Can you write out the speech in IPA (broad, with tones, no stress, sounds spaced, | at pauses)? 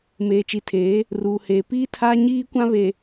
m eː˨ t͡ʃ i˨ tʰ eː˨˦ | r uː˨ h eː˨ p iː˦ tʰ aː˦ ɲ iː˦ kʷ ã˦ β e˨